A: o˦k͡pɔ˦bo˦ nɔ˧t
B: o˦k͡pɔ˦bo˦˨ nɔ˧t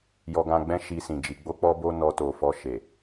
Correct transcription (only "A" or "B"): A